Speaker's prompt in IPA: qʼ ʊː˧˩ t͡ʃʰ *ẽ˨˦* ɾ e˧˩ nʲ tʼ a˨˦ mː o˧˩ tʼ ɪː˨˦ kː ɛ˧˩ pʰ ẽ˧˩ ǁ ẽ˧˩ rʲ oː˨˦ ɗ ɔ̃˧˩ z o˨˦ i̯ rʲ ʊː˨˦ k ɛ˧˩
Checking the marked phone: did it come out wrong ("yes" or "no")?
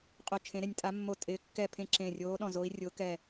no